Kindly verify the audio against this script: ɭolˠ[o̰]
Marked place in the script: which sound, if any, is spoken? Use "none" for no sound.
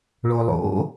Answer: o̰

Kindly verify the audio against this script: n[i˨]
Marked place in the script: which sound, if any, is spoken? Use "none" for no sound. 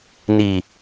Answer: i˨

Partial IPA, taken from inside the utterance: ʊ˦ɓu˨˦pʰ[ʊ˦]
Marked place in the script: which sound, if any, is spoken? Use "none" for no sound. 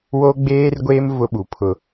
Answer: ʊ˦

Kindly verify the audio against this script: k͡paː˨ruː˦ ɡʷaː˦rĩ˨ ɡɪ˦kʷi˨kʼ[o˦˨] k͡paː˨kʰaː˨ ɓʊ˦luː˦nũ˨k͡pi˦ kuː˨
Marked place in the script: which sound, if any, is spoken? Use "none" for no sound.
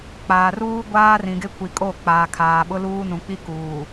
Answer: o˦˨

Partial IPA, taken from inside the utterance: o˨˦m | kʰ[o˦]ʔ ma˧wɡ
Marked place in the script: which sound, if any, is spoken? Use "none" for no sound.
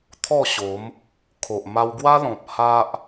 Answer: o˨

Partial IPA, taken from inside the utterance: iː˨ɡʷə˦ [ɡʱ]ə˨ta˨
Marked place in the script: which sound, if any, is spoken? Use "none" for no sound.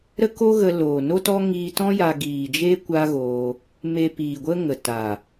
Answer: ŋ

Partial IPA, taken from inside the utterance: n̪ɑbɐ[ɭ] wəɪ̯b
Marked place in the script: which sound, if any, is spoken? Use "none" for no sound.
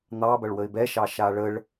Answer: ɭ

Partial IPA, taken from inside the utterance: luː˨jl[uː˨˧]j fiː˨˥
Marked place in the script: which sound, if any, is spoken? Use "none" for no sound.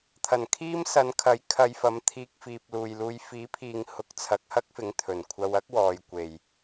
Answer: uː˧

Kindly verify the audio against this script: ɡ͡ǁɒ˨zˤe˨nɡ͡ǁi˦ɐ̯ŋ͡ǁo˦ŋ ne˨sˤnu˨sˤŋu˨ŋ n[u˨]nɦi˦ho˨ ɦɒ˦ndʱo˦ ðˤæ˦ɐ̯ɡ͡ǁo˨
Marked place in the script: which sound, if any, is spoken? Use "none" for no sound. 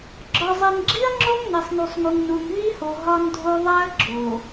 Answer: u˨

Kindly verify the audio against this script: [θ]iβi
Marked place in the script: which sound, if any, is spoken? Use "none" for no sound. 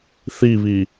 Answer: θ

